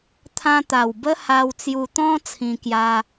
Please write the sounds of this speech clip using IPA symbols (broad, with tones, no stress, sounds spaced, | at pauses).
t̪ʰ ã˧ t̪ a˨˩ w b ə˦ h a˧ w t͡s j u˧ t̪ ɔ̃˦ t͡sʰ ĩ˧ k j a˧